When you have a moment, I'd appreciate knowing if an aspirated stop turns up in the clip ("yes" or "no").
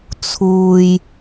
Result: yes